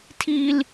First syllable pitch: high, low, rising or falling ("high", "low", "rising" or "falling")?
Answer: high